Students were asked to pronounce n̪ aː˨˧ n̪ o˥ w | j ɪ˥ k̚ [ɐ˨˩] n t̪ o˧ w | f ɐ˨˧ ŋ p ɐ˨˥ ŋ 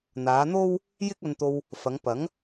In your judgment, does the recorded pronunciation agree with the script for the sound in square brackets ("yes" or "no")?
no